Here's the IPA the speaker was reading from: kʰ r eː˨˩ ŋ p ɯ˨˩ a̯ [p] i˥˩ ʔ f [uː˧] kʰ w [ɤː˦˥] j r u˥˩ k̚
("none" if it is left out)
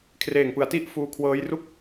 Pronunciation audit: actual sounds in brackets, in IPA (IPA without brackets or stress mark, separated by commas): t, uː˧, ɤː˦˥